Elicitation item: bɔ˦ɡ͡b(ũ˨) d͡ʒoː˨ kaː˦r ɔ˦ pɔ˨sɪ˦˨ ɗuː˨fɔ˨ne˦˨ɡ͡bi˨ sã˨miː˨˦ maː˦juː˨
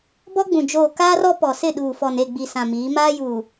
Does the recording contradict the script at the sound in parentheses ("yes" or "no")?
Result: no